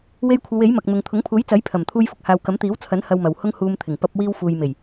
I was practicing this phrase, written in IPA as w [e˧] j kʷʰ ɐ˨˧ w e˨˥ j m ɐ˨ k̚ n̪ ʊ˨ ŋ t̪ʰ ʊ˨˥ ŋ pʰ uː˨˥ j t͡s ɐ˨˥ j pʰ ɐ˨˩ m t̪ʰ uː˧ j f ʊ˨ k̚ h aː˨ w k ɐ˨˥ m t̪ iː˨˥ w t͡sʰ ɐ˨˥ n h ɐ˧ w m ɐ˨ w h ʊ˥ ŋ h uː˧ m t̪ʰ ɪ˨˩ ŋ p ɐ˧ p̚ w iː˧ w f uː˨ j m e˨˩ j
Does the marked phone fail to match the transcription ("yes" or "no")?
no